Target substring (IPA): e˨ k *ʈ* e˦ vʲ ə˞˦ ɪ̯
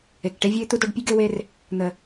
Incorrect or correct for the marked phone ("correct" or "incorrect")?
correct